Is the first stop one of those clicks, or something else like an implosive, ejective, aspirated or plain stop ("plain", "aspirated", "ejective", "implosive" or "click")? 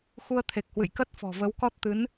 aspirated